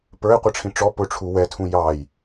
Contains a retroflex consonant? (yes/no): yes